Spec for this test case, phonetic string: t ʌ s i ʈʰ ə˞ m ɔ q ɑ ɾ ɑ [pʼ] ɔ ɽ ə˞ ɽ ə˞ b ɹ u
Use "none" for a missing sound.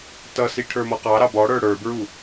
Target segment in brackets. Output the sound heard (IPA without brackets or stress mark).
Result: b